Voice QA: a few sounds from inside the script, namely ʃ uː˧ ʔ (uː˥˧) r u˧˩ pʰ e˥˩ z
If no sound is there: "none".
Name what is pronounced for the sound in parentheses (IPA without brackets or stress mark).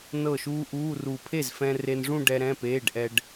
uː˧˥˧